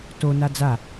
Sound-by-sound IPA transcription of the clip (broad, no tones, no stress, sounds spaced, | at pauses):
t o n a d͡z a